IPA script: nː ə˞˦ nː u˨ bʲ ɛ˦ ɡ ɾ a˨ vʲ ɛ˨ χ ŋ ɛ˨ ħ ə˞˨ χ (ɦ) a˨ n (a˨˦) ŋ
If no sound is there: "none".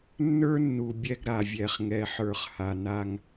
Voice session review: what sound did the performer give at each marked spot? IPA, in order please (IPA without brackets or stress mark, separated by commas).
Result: h, a˦